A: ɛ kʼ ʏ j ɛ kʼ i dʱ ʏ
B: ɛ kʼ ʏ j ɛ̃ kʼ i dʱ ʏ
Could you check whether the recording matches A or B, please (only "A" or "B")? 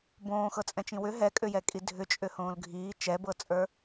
A